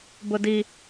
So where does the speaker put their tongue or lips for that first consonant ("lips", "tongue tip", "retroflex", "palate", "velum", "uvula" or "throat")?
lips